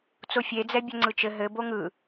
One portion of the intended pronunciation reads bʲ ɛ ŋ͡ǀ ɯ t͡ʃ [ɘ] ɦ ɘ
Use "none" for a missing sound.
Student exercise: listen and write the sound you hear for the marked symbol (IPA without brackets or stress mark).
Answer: ɘ